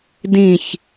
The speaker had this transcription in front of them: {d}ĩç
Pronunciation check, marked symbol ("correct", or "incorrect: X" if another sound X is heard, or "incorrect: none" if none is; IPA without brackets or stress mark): correct